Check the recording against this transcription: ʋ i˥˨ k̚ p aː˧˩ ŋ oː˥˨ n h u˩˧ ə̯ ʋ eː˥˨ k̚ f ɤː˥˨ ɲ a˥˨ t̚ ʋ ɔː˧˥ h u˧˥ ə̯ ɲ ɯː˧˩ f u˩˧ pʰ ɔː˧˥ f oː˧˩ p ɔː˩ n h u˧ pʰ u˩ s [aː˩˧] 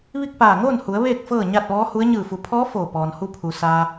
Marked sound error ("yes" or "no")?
yes